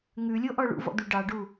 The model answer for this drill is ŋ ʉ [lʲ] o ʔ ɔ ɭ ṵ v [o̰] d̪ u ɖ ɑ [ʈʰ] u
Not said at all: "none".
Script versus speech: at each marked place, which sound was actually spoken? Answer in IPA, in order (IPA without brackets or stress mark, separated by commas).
lʲ, ɔ̰, ɖ